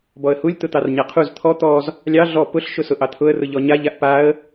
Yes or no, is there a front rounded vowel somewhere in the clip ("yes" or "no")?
no